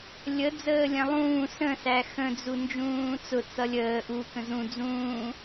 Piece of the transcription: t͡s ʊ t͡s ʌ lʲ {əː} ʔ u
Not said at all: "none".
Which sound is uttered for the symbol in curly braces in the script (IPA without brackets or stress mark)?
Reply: əː